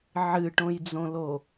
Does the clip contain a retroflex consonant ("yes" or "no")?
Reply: yes